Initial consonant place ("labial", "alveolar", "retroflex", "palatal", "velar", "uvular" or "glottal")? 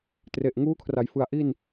alveolar